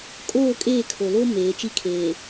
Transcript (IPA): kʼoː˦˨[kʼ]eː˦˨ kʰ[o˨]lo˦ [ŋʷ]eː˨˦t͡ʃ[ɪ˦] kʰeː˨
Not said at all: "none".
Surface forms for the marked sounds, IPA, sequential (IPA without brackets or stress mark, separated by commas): kʼ, o˨, m, i˦